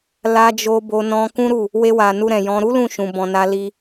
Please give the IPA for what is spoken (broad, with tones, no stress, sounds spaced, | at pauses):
l a˧ d͡ʒ o˧ b o˧ n ɔ̃˧ k ũ˦ ɾ u˦˨ | w e˧ w a˨ n u˧ ɾ ɛ̃˨ j ɔ̃˧ ɾ u˦ l ũ˦˨ ʃ ũ˨ b ɔ̃˨ n a˧ l i˧